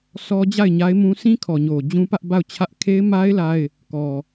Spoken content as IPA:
sʰ ɔ˦ d͡ʑ a˦˨ ɪ̯ ɲ a˦ ɪ̯ m ũ˦ sʰ ĩ˦ kʰ ɔ˨ ɲ o˨ d͡ʑ ũ˦ p ä˦ ʔ b a˦˨ ʊ̯ t͡ɕʰ ä˦ ʔ kʰ e˦ ɪ̯ m a˦ ɪ̯ l a˦ ɪ̯ | k ɔ˨

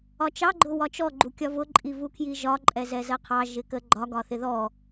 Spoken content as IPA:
ɒ t͡ʃ ɑ ɡ͡ǃ ʊ w ɒ t͡ʃ ɔ ɡ͡ǃ u kʲ ɒ v ʊ ǃʼ i v u kʰ j i ʒ ɒ ǃʼ ɛ z ɛ z ɜ qʰ ɑ ʒ ɪ k ə ɡ͡ǃ ɒ ɡ ɒ θ ɪ ð ɔ

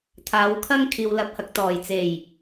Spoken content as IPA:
t̪ʰ aː˨˧ w kʰ ɐ˥ ŋ kʰ iː˨ w l ɐ˨˥ p̚ h ɐ˨ k̚ t̪ ɔː˨˩ j t͡s e˨˩ j

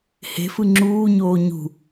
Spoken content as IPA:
h e̤ f ɯ ŋ͡ǁ uː ɲ oː ɲ ṳ

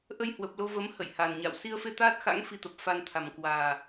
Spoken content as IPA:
ʔ ə˧ j h w ə˨˩ p̚ l o˧ v ə˨˦ m h ə̰˧˨ j h a˨˩ n ɲ a̰ː˧˨ w s i˧ ə̯ f e˧ t̪ aː˦˥ t̚ x a̰˧˥ ŋ f i˧ t̪ ə˨˩ p̚ f a˧ n t̪ʰ a˨˩ m k w aː˨˩

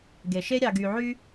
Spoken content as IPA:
ɡ e˩ ʃ e˦ ɾʲ ɑ˨ ɡ y˨ ʕ y˦

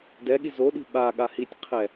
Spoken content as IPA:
d ɛ ɠ i z o ɗ i̤ ɓ a ɠ a h i tʲ qʰ ɛ

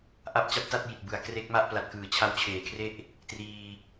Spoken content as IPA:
ʔ a˦˥ p̚ t͡ɕ a˦˥ p̚ t a˥˩ t̚ j i˨˩ t̚ b ɯ˩˦ a̯ k r e˦˥ k̚ m a˥˩ ʔ p l a˨˩ t̚ k ɯː˩˦ t͡ɕʰ a˦˥ w t͡ɕʰ eː˨˩ kʰ r e˥˩ ʔ | t r iː˧

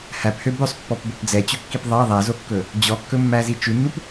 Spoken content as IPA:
h æ p h ø b ɵ sˤ pː ɔ p b o p d͡z ɛ t͡ɕ ɵ kː i p ðˤ ɑ ðˤ æ z o kː ɵ | d͡ʑ ɔ kː ɵ mː æ z i t͡ʃ ʉ nː u p

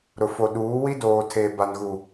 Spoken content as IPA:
ɾ ʊ˨ f o˨ ɗ uː˨˦ w i˦ d oː˨ tʰ eː˨ b a˨ n ɣ u˨

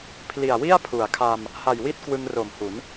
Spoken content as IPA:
pʰ l i˨˩ a̯ w i˥˩ a̯ pʰ u˩˦ a̯ kʰ a˧ m | h a˨˩ j w i˥˩ t̚ k w ɯ˧ ŋ r o˨˩ m h u˩˦ n

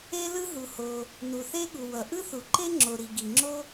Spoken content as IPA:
e˥ l ɯ˥ ɦ u˩ h o˩ | n u˩ θ e˥ ɠ u˩ w ʌ˩ ʔ ɯ˥ θ u˩ ǃ e˥ ŋ͡ǁ o˩ ɾ i˩ ɡ i˩ ŋ͡ǁ o˥

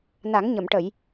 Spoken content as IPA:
n a˨˩˦ ŋ ɲ ə˨˩˨ m ʈ ə˨˩˨ j

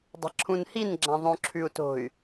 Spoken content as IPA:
dˤ a̤ ǁʰ ũ n h i n ɡ͡ǁ ã ðˤ õ ǁʰ ʉ u̯ t o̤ y̯

